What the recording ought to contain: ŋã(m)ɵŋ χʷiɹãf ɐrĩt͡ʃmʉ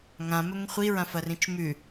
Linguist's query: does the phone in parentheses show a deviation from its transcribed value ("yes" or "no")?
no